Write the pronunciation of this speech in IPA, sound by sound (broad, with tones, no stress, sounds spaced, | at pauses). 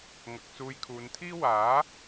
ŋ ɐ˨ k̚ t͡s uː˧ j kʰ uː˨˧ n t̪ʰ iː˥ w aː˨˥